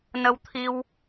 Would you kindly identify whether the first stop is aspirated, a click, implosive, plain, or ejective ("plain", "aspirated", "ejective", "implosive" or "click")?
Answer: aspirated